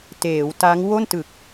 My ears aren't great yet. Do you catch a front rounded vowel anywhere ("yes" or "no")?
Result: no